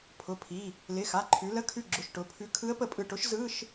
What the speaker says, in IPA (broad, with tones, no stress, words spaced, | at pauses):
pʰʊ˩˧˩pʰi˩˧˩ | lɪ˩˧˩xa˩˧˩ǃʰʉ˩˧lə˧˥˧ kʰʉ˧˩ɡ͡ǁʊ˩˧˩ʃ ʈʊ˩˧˩pʰʉ˧˥ kʰɯ˧˥ə̯pə˧˩pʼɯ˧˩ ʈʊ˧˥ʃzɯ˧˥˧ʃ